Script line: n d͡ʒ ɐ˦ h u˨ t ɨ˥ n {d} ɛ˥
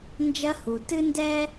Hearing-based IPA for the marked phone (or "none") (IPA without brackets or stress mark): d